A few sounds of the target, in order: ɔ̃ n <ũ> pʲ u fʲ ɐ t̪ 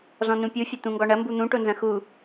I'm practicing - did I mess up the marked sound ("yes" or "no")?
no